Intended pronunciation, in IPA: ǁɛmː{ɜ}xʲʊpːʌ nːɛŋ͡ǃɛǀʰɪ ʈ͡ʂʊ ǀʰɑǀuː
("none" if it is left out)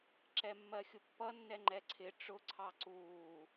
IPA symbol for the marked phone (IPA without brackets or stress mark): ɜ